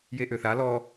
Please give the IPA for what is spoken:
j e ʔ ø θ a l ɔ

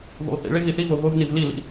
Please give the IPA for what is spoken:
v ṵ lˠ θ ḭ ɭ e ɣ i θ i v o ɣ o v n i v l i l ḭ

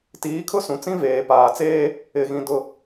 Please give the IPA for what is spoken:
t iː˨˦ kʰ ʊ˦ s ũ˨ t͡s ĩ˦ v eː˨ p aː˨ t͡s eː˦ | ɪ˦˨ ɣ ĩ˦ d ʊ˦

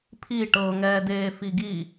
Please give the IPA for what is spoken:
pʰ i ʈ ɤ ŋ ɛː d eː f i ɡ i

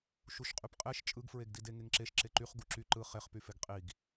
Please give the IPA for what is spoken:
ʃ u ʃ qʼ y p qʼ e ʃ t͡ʃʼ ɯ ɡ f ɹ e ɡ d i d e ŋ e ŋ ǁ e ʃ ǁ e ǃ y χ ɡ u ǁ y ǃ ɯ χ e χ p y f e ɡ qʼ i ɡ

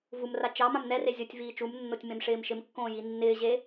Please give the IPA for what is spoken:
v u m r a t͡ʃ ɑ m ã m n ɛ r e zʲ o tʲ v iː t͡ʃ u m nː o tʲ m ẽ m ʂ ɪː m ʃ ɪ m kː õː j i nː ɪː ʑ e

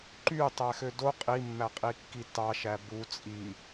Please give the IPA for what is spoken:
ǃ y tˤ æ x ø d o qʼ i mː æ qʼ i kː i t ɑ ʃ æ b u t͡sʼ i

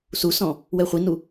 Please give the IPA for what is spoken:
s u s ɔ̃ | w ɛ χʷ i n u

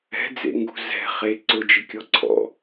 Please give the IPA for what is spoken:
ɛ̤ d͡z ḛ ŋ ɡ ṳ z ɛ̤ χ e ǀ ʊ d͡ʒ ɪ kʲ ɔ ǀʰ ɔ̰

